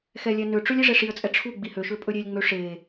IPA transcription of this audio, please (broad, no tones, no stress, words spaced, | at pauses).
xɛlʲɛnøʈ͡ʂɵlʲ iʐɛʂiə̯t͡sʼɛ ʈ͡ʂʰu ɡ͡bihøʃø pʼɵɾʲelʲŋ͡mø ʂe